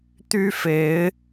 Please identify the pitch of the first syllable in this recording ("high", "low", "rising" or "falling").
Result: high